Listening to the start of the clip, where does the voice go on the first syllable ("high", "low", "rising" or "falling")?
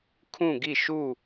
falling